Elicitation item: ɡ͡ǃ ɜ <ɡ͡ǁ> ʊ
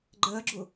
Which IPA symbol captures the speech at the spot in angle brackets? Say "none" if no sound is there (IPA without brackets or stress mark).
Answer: ɡ͡ǁ